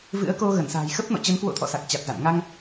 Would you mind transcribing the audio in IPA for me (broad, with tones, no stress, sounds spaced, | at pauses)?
v ɨ̰˧˥ ə̯ k o˧ ɣ ə˧˩ n s a̤ː˨˩ j x ə˦˥ p̚ n ɔ̰˧˨ t͡ɕ ə˨˦ n k w o̰˧˥ t̪ʰ ɔ̰˧˨ s a˨˩ k̚ t͡ɕ a˨˩ t̚ z a̰˧˨ n ŋ a˧ ŋ